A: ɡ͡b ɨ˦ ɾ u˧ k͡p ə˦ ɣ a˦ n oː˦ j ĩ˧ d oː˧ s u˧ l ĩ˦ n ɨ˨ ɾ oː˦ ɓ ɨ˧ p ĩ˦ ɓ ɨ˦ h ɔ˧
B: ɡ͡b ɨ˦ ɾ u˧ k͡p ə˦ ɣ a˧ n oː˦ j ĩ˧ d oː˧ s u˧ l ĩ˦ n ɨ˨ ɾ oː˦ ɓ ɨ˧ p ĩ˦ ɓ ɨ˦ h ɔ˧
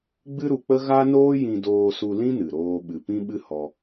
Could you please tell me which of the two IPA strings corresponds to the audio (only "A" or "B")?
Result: A